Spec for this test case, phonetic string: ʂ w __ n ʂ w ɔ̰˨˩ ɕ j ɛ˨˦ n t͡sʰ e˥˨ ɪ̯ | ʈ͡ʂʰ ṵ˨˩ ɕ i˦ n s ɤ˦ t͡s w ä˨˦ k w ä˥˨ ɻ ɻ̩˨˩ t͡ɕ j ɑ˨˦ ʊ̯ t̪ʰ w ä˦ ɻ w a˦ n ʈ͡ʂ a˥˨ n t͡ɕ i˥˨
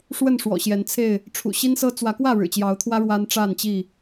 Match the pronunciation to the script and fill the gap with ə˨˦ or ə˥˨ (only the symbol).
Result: ə˥˨